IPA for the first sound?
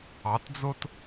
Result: ɑ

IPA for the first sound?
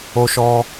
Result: o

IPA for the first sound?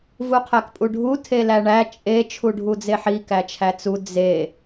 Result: v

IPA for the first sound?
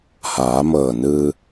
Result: h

